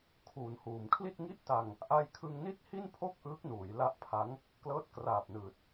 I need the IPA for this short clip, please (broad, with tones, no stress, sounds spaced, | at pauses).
kʰ uː˩˦ n h uː˩˦ m kʰ l i˥˩ t̚ ŋ i˥˩ ʔ t a˧ ŋ | ʔ a˧ j kʰ ɯ˧ ŋ n i˥˩ t̚ h i˥˩ n pʰ o˥˩ k̚ ʔ ɯː˦˥ k̚ n uː˩˦ j l a˦˥ ʔ pʰ a˦˥ ŋ | k l ɤː˦˥ t̚ k r aː˨˩ p̚ n ɯː˨˩ t̚